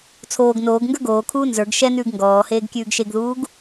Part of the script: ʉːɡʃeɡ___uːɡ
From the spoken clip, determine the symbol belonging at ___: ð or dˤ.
ð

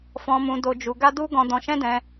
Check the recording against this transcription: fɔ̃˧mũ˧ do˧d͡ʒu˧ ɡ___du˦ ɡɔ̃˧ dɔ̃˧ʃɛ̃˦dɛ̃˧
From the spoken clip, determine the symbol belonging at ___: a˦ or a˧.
a˦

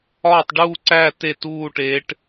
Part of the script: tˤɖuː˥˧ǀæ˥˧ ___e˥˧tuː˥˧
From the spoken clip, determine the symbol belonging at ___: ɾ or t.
t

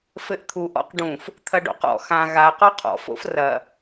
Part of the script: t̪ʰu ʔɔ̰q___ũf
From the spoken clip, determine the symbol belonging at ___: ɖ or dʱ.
ɖ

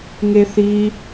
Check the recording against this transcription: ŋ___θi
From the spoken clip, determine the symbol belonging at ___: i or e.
e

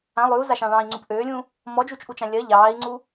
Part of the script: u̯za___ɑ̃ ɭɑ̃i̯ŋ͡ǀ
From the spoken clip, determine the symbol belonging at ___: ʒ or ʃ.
ʃ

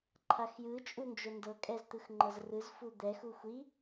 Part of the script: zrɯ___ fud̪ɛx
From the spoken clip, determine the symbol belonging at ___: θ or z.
z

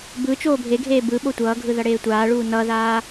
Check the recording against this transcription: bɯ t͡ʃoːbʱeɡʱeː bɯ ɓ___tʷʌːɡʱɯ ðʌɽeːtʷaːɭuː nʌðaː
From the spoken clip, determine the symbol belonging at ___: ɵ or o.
o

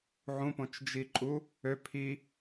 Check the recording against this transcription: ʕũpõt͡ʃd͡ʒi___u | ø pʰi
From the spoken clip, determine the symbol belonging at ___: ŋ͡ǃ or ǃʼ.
ǃʼ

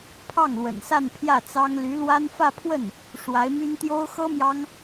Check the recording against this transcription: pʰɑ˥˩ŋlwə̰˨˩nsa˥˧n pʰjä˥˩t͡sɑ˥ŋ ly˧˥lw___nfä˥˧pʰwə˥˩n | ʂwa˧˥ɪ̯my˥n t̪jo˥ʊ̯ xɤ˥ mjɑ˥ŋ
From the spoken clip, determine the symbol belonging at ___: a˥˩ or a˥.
a˥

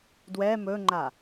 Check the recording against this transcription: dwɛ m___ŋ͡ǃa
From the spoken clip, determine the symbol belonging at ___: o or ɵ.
ɵ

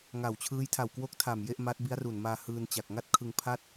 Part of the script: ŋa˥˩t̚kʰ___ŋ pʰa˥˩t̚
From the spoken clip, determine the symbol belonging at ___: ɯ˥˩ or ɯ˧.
ɯ˧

